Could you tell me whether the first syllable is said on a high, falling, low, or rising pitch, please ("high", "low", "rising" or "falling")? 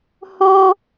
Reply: high